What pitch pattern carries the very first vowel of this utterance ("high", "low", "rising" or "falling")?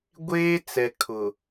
high